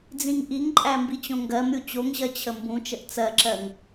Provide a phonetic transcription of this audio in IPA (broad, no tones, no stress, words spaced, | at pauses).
d͡zĩŋʔiŋǃʼæ mbit͡ɕõŋɡɜmɾʲu t͡ɕoŋʑɜ t͡ɕʰəmbũt͡ʃəʔ t͡sɜǁɜŋ